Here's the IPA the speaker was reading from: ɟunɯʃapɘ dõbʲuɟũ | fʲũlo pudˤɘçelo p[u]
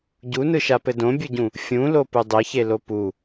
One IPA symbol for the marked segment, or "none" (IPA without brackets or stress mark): u